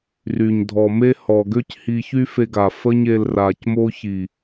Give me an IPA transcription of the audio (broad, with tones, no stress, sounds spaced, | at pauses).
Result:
r y˨ ɲ dʱ ɔ˨ m e˦ h ɔ˨ ɡ ø˦ c h i˧ ç y˦ f e˧ ɡ a˨ f ə˦ ɲ e˧ l r a˨ c m o˦ ç i˨